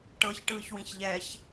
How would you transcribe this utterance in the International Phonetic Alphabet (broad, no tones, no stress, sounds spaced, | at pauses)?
ʈ ɤ ç ʈ ɯː ç w ĩ ç ʎ ɛ ç